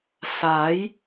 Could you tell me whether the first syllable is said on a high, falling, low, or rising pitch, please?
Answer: rising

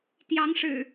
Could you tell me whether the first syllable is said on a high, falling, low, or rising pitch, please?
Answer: rising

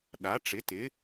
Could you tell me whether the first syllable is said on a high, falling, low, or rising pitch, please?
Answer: rising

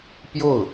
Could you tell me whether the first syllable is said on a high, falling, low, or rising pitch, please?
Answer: falling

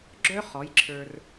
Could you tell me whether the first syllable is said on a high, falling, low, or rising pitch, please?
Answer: high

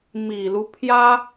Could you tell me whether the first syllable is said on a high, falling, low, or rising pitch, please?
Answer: low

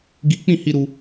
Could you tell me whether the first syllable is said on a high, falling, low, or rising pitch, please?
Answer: high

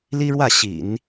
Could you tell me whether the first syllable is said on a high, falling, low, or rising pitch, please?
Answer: high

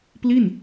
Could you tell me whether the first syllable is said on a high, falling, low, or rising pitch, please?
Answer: falling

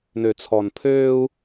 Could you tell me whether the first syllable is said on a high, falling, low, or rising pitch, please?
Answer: low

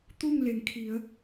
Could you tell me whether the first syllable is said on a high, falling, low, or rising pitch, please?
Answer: falling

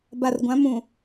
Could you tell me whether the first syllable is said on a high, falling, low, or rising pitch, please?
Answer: low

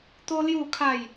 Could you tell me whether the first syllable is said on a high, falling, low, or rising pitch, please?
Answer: high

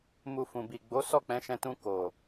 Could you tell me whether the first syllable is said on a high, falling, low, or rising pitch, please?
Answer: low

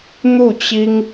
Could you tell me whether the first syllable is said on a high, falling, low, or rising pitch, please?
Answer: falling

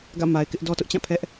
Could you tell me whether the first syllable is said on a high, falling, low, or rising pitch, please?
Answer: falling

